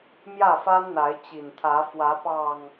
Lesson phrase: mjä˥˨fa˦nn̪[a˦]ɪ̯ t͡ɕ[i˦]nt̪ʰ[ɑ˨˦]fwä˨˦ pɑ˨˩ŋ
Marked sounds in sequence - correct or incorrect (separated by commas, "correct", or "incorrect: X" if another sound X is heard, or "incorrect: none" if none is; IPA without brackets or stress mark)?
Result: incorrect: a˨˦, incorrect: i˨˩, incorrect: ä˨˦